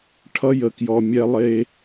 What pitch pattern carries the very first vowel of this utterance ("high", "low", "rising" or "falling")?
high